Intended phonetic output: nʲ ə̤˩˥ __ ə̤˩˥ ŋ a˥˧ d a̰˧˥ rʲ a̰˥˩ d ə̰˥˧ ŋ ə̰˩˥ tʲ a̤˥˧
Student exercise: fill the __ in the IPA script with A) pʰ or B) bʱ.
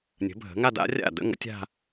B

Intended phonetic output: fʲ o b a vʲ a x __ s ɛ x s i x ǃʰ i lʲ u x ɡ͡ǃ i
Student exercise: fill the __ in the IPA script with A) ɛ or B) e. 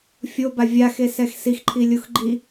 B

